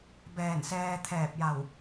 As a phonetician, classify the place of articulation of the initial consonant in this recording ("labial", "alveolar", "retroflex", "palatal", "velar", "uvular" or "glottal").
labial